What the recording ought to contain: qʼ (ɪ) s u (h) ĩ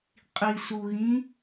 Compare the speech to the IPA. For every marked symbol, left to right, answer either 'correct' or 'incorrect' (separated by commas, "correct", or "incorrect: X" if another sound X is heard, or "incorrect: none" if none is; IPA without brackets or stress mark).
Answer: incorrect: i, incorrect: ɣ